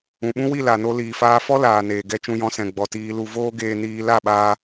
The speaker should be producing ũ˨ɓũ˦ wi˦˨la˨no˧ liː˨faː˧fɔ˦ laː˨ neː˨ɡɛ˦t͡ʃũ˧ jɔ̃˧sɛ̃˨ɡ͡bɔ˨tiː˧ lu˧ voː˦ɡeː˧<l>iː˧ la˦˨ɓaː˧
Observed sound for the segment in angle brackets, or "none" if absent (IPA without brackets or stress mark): n